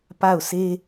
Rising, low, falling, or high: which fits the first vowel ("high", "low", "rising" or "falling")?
falling